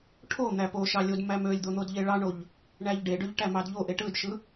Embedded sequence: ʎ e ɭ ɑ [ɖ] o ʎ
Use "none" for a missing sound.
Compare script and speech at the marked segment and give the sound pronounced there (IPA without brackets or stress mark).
ɳ